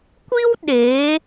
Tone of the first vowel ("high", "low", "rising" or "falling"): high